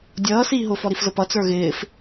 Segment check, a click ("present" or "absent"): absent